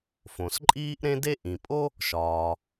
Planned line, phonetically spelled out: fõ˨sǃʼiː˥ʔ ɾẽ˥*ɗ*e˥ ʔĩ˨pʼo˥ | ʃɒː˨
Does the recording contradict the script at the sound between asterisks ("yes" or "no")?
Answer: yes